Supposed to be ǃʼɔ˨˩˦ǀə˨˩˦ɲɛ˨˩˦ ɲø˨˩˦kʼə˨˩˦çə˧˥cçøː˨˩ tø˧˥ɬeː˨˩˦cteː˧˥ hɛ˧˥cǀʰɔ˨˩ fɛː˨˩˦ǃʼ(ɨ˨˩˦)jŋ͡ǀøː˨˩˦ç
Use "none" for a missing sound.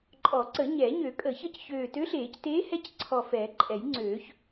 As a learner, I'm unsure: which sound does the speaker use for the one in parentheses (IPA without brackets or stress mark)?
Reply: ɛ˨˩˦